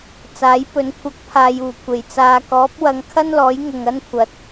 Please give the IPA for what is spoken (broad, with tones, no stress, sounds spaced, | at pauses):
t͡s aː˨˥ j p ɵ˨ n kʷʰ ɐ˧ k̚ pʰ aː˨ j uː˨˩ kʷʰ e˨˩ j t͡s aː˨ k ɔː˨˥ p̚ w ɐ˨ ŋ kʰ ɐ˥ n l ɔː˨˥ j ŋ ʊ˨ ŋ ɐ˥ n kʷʰ ɐ˨˥ t̚